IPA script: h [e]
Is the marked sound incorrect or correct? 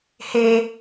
correct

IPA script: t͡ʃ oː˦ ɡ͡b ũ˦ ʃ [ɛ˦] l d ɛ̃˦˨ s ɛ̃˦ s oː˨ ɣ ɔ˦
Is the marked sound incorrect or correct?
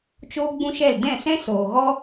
incorrect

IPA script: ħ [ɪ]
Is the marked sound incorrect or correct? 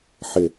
correct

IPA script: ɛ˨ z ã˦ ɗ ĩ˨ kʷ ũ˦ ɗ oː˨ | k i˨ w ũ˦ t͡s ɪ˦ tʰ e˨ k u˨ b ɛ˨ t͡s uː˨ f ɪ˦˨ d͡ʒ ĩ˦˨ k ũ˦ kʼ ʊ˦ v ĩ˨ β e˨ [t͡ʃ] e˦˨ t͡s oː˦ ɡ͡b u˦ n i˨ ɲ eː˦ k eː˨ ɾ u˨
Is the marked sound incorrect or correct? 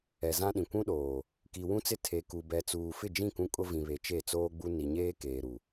correct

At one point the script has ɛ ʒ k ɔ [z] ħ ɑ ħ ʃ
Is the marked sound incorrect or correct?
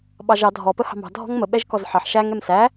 correct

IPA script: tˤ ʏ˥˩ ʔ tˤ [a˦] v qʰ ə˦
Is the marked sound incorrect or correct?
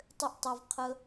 correct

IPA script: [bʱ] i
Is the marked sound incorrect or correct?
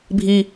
correct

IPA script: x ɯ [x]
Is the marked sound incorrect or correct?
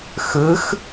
correct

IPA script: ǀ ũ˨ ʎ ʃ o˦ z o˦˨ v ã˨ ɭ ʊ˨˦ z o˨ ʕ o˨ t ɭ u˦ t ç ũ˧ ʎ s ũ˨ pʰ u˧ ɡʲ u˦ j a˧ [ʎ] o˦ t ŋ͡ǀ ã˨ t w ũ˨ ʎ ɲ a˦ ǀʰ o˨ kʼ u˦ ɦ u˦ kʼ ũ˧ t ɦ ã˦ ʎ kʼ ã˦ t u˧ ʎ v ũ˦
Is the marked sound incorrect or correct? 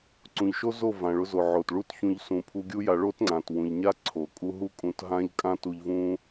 incorrect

